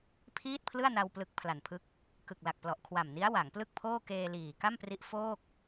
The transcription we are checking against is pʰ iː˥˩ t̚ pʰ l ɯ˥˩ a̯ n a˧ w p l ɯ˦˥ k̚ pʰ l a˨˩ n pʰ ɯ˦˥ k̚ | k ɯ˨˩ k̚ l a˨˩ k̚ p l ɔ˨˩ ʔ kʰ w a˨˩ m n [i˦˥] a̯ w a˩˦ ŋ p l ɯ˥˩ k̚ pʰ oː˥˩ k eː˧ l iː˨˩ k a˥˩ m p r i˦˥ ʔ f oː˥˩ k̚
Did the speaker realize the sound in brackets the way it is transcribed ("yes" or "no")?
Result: yes